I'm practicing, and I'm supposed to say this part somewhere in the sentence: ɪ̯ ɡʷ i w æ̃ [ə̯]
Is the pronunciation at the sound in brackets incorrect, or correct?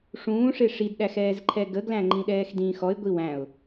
incorrect